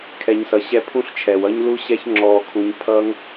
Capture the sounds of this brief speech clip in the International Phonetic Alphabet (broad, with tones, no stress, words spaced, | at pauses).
kʰɛ˧ɲ sʌ˨ɕɛ˧ pʰũ˦ɬt͡ʃʰɛ˨wʌ˦ɲ lu˦ɕɛ˦ç ŋ͡ǁɔː˧kʰũ˧ɲ pʰʌ˦ŋ